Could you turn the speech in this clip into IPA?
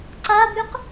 ǀ a b y q

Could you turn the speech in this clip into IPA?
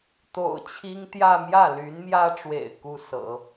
t̪ o̰˨˩ ʊ̯ t͡ɕʰ i˥ ŋ t̪ j ä˥˧ m j ä˥˩ l y˧˥ n m j ä˥ ʈ͡ʂ w ḛ˨˩ ɪ̯ k u˥ s ɤ̰˨˩˦

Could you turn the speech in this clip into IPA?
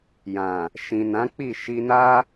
j ã˨ | ʃ ĩ˨ n ã˨˦ k͡p i˦˨ ʃ i˧ n a˦

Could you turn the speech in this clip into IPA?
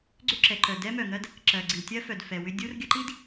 ɡ͡ǀ ʏ˦ ǁ ɛ˨ ǃ œ˨ d ɛ˦ m œ˨ ŋ ɜ˦ d | ǁ ɜ˨ ɡ͡ǀ i˨ tʲ ɜ˦ f œ˨ d f ɛ˨ w ʏ˦ dʲ u˦ r ɡʲ ə˦ ǃ i˦ d

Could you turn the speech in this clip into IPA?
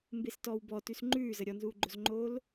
m b e s t ɔ w b ɔ t ʉ s ŋ͡ǃ ʉː z ə ɾʲ ɔ n z uː ɡ͡ǃ o z ŋ͡ǃ oː l

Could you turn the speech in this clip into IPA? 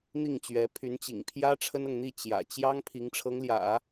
n̪ i˥˩ ŋ t͡ɕ ɥ ɛ˧˥ pʰ y˧˥ n t͡ɕ ḭ˨˩ ŋ pʰ j ä˥ ʈ͡ʂʰ ə˥ n ɤ˨ ŋ n̪ i˥˩ t͡ɕ j ä̰˨˩ t͡ɕ j ɑ˥ ŋ pʰ i˧˥ ŋ ʈ͡ʂʰ ɤ˧˥ ŋ l j ä̰˨˩˦

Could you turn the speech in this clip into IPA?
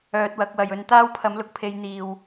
œː˧ t̚ w ɐ˨˥ k̚ w ɐ˨ j ɵ˧ n t̪ aː˥ w pʰ ɐ˨˥ m l ʊ˨˥ k̚ pʰ e˨˧ j n̪ iː˨ w

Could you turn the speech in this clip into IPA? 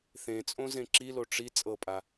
θ ẽ t͡sʼ õ z ẽ ǁ i l o ʈ͡ʂ i t͡sʼ ɤ pʼ a

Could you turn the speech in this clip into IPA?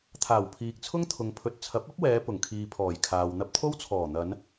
t̪ʰ aː˨˩ w pʰ iː˨ k̚ t͡sʰ ʊ˥ ŋ t̪ʰ ʊ˨ ŋ pʰ ɵ˨ t̚ t͡sʰ ɐ˨˥ p̚ ɐ˥ p̚ w ɛː˨˧ p ʊ˨˩ ŋ kʰ iː˨ pʰ ɔː˨˩ j kʰ aː˨ w n̪ ɐ˧ p̚ t̪ʰ o˥ w t͡sʰ ɔː˨˩ n̪ ɐ˨˧ n

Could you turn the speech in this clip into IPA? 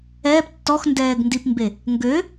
ɛː p tː ɔ x n d ɛː ɡ n d i p m b e | ŋ ɡ ø

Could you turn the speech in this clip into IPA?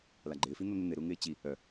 l a ɡ͡ǃ ɪː f i n̪ o n̪ ɪ n̪ ɪ ɾ u ŋ ɪː t͡ɕ i | œ

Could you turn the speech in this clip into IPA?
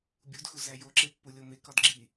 bʲ u d x u z æ j o ǁ e pː u lʲ o m e k ɒ d ɡ͡ǁ i

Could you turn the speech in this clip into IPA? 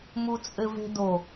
m u t͡sʼ ɘ v e̤ d o

